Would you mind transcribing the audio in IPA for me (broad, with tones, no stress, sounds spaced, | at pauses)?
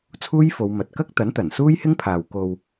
t͡sʰ uː˥ j f o˨˧ w m ɐ˨ t̚ k ɐ˥ k̚ t̪ ɐ˨˥ n t̪ ɐ˨˩ n s uː˥ j h ɪ˥ ŋ pʰ aː˨ w k o˧ w